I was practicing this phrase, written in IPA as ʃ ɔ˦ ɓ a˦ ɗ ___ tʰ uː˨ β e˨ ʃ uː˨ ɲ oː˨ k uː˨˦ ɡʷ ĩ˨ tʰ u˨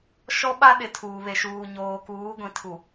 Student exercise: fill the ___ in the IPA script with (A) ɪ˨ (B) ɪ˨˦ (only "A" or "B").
B